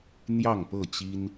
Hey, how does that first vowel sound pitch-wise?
falling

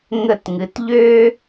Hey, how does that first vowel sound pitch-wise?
falling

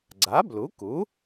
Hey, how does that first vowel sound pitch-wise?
rising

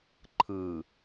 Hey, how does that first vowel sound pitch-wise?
low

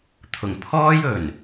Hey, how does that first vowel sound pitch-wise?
low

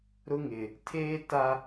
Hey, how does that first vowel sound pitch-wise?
high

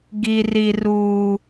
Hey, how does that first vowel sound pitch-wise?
low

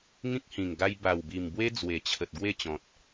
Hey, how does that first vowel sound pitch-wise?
high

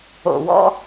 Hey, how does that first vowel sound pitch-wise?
low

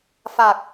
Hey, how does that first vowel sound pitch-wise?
low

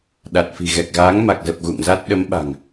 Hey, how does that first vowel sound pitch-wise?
low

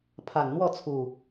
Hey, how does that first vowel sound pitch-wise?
low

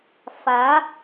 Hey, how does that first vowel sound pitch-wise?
rising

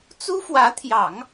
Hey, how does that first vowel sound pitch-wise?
high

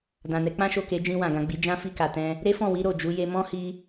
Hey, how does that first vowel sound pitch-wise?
low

